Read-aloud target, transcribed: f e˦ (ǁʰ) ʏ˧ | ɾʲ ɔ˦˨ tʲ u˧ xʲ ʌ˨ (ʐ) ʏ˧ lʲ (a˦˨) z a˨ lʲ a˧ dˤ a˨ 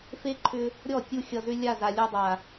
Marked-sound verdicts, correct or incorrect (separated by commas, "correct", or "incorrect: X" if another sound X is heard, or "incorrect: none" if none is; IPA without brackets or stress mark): incorrect: ǃʰ, incorrect: z, correct